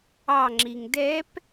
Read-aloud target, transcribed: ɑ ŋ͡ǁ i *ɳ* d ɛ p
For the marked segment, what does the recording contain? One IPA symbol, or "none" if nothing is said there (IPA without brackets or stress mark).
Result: ŋ